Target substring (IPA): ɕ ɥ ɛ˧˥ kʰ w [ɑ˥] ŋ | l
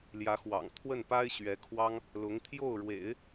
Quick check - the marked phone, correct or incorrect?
correct